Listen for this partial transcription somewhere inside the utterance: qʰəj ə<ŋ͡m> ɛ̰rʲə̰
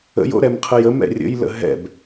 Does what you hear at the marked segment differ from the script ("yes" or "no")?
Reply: yes